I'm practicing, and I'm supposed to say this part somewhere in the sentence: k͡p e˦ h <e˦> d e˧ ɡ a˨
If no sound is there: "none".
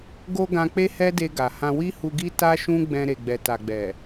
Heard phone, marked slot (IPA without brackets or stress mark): ɛ˦